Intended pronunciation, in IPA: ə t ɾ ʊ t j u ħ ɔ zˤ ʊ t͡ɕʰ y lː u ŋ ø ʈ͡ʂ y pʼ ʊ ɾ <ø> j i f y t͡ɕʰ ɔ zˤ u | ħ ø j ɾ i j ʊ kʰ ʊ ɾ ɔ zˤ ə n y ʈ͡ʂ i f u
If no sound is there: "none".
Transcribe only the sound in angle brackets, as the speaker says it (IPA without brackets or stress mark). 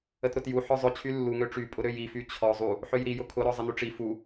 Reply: ø